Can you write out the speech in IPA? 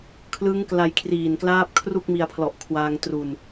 kʰ l ɯ˦˥ ŋ k l a˧ j kʰ r iː˨˩ n k l aː˦˥ p̚ kʰ r u˥˩ k̚ m i˧ a̯ pʰ l ɔ˨˩ ʔ kʰ w aː˧ ŋ t r u˨˩ n

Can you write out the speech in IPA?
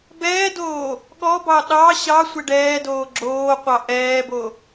b ɛː d oː | ɠ ɔ b ɑ ɗ ɑ ɕ ɑ sʷ ɛ ɖ ɛː d oː ɡ͡ǁ oː qʷ ɑ ʔ ɛː b o

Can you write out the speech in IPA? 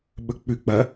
ɓ ɵ k͡p ʉ k͡p ɐ

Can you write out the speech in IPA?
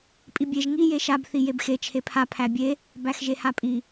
pʼ i bʲ e ʒ ŋ i j e ʃ a b θ i j e b x e t͡ʃʰ e pʰ a pʰ æ bʲ e | b æ x ʒ e h a pʼ i

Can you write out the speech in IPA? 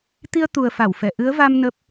t̪ i˧ ə̯ t̪ u˨˩ ə̯ f a˧˩ w f ɛ˧˩ ʔ ɨ˨˦ ə̯ v a˧ m n ə˦˥ p̚

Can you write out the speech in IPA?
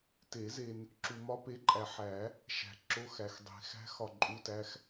t e˨˩˦ z e˨ n | ǁ u˨ m ɒ˦˥ p e˨˥ ǃʼ æ˨ ħ æ˨˩˦ | ʃ æ̤˨ ǁ o˧˥˧ x æ˨ x dˤ e̤˨ x æ̤˦˥ x ɒ˦˨ ǃʼ u˧˥˧ t æ˦˥ x

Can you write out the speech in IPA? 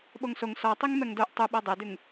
ɓ o ŋ s o ŋ s ɔ tˤ i ŋ m ɛ ŋ d o ʔ tˤ u ɓ ɤ dˤ ɛ d ʉ ŋ

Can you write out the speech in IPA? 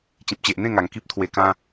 t͡ɕ ĩ˨ p̚ t͡ɕ e˨ ʔ n̪ ẽ˥˧ ŋ a˨˩ ŋ k i˦ p̚ t̪ʰ w e˧ k ã˦

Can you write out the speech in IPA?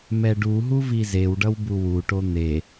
m ɛ ɖ u ɦ u v i z e w ɖ ʌ w b u w u ʈ o n̪ e

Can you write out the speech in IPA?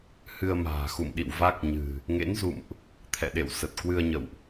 h ɨ˧ ə̯ m a̤ː˨˩ x ṵ˧˨ m ɗ ḭ˧˨ w v a˦˥ k̚ ɲ ɨ̤˨˩ | ŋ ḛ˧˥ n z ṵ˧˨ m ʔ | t̪ʰ ɛ̰˧˨ ɗ ḛ˧˨ w s ə˨˩ t̚ k w ɨ˧ ə̯ ɲ ə̰˧˨ w ʔ

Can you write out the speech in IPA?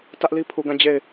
t ä˦ ʔ l i˦ pʰ u˨ ɡ ã˦˨ d͡ʑ e˦˨ ɪ̯

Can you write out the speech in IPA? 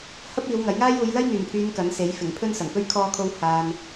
h ɐ˥ p̚ iː˨˧ w ŋ ɐ˨˥ j ŋ aː˥ j uː˨˧ j l ɐ˥ j ŋ yː˨˩ m pʰ yː˨˧ n k ɐ˨˥ n s e˨˥ j f ɪ˨˩ ŋ pʰ ɵ˥ n s ɐ˨˩ ŋ p ɵ˥ ɥ kʰ ɔː˥ kʰ o˥ w h aː˧ n

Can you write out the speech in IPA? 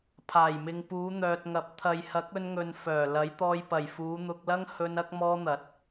pʰ aː˨˩ j m ɪ˨ ŋ p uː˨˧ n̪ œː˨ t̚ ŋ ɐ˨˥ p̚ t̪ʰ ɐ˨ j h ɐ˨˥ k̚ ɵ˧ n ŋ ɵ˨ n f œː˨˩ l ɐ˨˥ j t̪ ɔː˧ j p ɐ˨˩ j f uː˨˧ n̪ ʊ˧ k̚ l ɐ˥ ŋ h ɵ˧ n ɐ˧ k̚ m ɔː˧ n̪ ɐ˨˥ t̚

